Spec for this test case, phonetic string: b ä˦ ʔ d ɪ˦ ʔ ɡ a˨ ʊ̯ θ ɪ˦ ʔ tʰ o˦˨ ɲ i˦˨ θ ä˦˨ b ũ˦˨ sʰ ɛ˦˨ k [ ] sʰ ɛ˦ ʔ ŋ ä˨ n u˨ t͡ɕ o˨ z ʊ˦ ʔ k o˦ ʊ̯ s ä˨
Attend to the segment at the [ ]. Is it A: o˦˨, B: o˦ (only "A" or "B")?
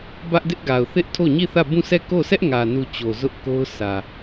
A